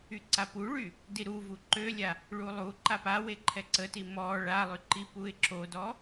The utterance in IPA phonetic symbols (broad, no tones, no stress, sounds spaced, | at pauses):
y ǀ a p u ɭ y | d i ɾ u v u ǃ ø lʲ a | ɭ u lˠ u ǃ a p a w e ǃʰ ɛ ǀ ə t i m ɔ ɭ a lˠ y ǃ i p u ɪ̯ ǁ o d ɔ